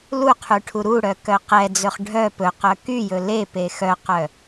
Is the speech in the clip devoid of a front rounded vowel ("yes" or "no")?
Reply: no